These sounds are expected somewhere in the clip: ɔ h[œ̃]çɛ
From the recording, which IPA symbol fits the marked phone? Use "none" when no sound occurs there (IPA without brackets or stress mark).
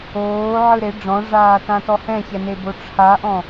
ɛ̃